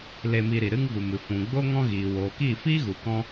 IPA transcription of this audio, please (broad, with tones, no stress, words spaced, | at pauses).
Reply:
le˧mi˧ɾi˨ ɾɨ˦ŋvu˨mɨ˨ fũ˨ɡ͡bo˦ ŋɔ̃˦ɣiː˨ woː˨kiː˦˨fiː˦ɣu˨ kɔ̃˦